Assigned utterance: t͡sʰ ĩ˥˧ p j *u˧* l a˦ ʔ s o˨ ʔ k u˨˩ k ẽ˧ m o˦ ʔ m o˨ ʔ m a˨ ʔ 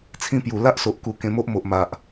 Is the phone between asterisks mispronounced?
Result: yes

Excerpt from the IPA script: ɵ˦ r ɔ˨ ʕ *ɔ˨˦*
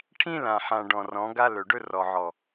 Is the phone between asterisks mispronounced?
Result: yes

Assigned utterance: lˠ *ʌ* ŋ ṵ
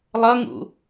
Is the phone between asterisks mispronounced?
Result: no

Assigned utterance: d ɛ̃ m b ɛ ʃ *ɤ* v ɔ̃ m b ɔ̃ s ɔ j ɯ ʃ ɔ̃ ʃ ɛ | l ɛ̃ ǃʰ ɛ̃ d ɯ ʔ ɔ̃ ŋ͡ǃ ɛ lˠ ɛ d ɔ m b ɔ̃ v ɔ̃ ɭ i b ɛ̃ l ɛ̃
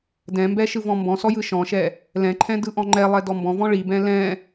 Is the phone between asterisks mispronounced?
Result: yes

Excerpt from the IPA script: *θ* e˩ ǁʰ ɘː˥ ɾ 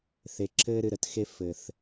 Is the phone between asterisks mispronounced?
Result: no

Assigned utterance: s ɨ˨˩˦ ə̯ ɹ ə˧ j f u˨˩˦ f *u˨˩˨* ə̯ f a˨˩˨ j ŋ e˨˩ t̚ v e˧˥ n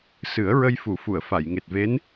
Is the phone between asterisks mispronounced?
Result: no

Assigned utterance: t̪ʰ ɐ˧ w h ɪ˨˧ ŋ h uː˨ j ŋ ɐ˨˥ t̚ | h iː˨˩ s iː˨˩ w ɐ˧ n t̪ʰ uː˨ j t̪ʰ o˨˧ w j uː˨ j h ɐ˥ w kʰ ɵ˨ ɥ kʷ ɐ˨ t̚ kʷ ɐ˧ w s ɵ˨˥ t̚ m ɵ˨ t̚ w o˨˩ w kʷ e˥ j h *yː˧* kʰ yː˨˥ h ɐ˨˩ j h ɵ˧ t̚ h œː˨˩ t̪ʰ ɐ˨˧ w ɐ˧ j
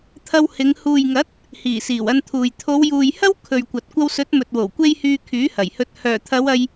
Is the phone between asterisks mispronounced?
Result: no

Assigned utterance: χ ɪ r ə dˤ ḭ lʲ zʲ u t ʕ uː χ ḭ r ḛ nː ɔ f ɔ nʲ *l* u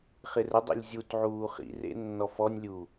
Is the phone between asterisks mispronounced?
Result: yes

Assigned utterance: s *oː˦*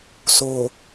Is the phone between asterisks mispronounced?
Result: yes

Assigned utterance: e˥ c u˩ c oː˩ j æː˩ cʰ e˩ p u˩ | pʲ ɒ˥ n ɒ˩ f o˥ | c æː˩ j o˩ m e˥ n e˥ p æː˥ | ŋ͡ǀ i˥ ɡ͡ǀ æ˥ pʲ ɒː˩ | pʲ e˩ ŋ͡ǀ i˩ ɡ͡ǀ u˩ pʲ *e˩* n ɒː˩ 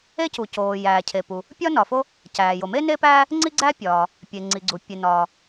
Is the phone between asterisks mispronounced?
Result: no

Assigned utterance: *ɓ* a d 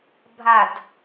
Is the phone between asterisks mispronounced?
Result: yes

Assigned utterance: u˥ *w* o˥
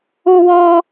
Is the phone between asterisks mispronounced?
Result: no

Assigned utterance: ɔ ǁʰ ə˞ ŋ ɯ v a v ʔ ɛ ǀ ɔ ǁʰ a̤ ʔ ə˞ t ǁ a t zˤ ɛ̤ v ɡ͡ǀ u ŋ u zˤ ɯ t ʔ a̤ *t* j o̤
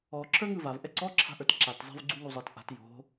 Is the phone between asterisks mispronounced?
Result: no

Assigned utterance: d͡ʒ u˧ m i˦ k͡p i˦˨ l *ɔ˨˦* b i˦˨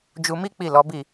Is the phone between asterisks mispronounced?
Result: no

